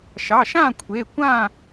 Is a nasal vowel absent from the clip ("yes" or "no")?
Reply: no